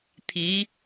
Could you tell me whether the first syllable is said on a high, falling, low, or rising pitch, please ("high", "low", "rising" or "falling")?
rising